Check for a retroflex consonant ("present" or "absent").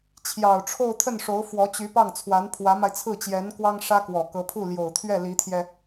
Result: present